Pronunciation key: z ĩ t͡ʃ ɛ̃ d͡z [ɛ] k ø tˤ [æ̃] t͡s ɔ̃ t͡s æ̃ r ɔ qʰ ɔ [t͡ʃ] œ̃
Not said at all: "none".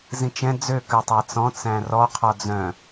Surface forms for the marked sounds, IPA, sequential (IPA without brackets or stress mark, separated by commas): ø, æ, d͡z